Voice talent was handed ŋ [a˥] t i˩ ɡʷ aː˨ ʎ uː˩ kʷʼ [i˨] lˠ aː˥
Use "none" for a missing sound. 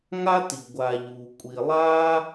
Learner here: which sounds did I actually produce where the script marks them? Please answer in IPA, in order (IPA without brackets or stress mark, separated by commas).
a˦, i˨